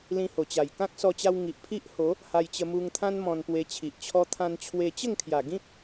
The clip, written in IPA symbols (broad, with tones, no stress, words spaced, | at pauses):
lĩ˧ho˨˩t͡ɕa˨˩j kã˦k̚sɔ˧t͡ɕa˧w ŋi˨ʔpʰi˦ʔho˨˦ | ha˧jt͡ɕə˧mu˧ŋt̪ʰã˦n mɔ̃˧npwe˧t͡ɕʰi˨ʔ t͡ɕʰɔ˧t̪ʰã˧nt͡ɕʰwe˧ t͡ɕə˥˧ŋkʰja˨˩ ɡĩ˦p̚